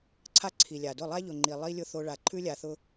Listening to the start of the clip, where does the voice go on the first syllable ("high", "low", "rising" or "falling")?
high